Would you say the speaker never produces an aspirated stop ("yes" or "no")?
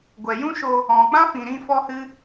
yes